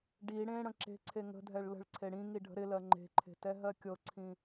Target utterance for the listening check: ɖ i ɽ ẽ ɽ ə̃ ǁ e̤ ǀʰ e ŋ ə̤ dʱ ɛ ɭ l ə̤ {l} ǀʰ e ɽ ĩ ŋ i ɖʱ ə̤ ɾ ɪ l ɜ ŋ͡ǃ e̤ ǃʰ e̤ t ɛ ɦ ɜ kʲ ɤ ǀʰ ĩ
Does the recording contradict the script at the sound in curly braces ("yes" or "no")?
yes